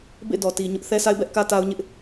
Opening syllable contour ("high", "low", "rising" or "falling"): falling